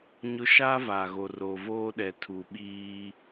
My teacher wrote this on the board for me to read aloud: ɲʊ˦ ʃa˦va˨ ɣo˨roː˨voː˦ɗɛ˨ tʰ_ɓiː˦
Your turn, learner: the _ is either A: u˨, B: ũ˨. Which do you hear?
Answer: A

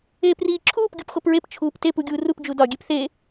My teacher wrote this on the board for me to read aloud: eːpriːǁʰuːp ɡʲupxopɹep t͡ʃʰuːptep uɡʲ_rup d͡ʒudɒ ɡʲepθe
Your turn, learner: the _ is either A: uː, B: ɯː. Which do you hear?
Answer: A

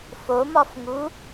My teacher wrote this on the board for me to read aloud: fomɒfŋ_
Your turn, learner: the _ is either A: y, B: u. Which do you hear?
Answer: B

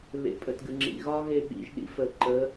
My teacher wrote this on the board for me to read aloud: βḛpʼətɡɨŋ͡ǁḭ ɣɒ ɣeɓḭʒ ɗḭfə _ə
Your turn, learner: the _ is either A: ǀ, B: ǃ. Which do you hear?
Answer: B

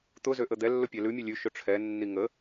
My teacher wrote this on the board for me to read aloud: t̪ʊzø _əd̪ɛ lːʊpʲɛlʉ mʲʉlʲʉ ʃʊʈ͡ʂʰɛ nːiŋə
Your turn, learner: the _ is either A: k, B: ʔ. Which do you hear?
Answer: B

